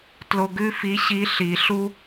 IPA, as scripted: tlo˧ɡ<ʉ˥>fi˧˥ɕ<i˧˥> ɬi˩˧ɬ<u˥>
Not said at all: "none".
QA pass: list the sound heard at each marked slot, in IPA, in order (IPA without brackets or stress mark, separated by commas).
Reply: ʉ˥, i˧˥, u˥